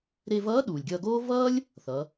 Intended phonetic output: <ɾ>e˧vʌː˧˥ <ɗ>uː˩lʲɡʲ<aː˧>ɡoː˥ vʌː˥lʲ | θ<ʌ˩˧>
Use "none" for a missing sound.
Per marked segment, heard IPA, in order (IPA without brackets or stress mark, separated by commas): ɾ, ɗ, ʌː˧, ʌ˩˧